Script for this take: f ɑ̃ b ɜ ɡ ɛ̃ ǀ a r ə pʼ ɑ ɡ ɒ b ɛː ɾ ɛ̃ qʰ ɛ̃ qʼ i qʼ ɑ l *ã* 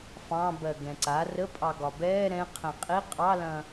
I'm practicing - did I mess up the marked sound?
yes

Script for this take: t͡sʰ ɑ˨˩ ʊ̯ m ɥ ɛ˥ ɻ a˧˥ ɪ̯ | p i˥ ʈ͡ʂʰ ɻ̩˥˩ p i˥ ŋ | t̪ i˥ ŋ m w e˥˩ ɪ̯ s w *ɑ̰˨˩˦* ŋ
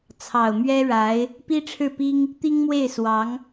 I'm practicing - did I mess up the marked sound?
yes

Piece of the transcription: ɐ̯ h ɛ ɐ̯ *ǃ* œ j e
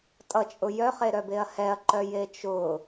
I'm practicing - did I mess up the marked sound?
no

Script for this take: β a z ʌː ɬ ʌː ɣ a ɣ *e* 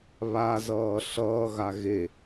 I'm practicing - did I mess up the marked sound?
no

